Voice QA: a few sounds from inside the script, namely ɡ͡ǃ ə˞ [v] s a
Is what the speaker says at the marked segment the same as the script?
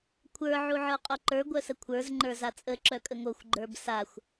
no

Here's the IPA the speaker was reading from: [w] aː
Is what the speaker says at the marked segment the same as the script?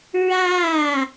no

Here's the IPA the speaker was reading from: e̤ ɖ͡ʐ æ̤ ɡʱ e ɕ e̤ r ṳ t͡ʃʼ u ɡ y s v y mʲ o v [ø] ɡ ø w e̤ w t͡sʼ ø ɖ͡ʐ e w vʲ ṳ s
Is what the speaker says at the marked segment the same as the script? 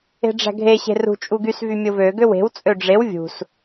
yes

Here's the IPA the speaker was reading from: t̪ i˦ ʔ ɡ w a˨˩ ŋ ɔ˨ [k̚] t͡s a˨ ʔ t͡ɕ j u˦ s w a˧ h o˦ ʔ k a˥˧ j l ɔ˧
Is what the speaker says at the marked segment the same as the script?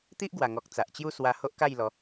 yes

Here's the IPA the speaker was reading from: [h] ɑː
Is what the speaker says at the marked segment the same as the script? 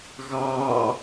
no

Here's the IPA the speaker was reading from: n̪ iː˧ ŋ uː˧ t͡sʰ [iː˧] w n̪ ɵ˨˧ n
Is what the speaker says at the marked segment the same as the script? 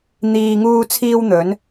yes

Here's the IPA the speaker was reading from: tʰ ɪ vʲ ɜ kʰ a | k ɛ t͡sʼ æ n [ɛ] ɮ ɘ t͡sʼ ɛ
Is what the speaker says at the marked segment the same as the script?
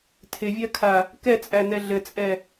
yes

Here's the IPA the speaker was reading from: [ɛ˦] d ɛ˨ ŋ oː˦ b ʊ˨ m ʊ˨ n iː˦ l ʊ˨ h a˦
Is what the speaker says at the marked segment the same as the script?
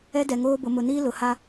yes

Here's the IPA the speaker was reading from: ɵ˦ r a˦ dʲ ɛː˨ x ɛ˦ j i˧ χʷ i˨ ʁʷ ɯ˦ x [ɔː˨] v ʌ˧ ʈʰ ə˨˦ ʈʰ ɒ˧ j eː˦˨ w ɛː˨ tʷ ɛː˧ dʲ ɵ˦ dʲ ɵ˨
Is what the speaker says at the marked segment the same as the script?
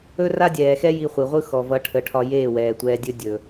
no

